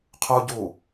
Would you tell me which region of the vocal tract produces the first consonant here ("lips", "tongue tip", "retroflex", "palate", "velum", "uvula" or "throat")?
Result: uvula